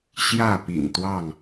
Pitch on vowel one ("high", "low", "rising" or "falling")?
falling